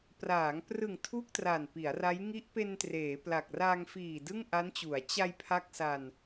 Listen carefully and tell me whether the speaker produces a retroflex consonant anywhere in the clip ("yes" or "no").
no